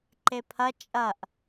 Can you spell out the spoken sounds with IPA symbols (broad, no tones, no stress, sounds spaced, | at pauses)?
ǃ e pʰ ɐ t͡ʃʼ ɐ ʔ